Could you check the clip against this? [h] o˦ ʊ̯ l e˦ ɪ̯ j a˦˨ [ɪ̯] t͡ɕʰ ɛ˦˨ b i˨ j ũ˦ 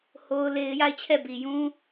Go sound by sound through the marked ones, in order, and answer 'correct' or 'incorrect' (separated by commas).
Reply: correct, correct